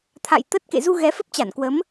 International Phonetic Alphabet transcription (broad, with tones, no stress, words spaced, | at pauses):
t̪ʰa̰˧˨j t̪ə˦˥t̚ kḛ˧˨zu˧ ɣɛ˨˦fə˦˥p̚t͡ɕa˧˩nkwə˨˦m